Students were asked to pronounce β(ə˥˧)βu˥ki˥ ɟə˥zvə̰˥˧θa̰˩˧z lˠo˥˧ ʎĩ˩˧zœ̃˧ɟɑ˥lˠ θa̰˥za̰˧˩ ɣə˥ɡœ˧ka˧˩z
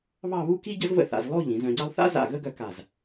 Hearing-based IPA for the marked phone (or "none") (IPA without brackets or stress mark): ɑ˥˧